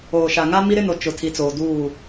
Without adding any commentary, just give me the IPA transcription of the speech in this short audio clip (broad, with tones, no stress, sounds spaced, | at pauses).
oː˨ ʃ a˨ ŋ a˦ m i˦ ɾ ɪ˦ n o˨ t͡ʃ ʊ˨ tʰ i˨ t͡s oː˨ d uː˦˨